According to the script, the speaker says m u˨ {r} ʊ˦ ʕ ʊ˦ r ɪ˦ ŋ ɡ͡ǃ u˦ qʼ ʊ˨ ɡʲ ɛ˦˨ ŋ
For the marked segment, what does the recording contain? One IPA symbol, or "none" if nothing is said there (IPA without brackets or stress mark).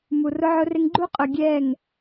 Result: r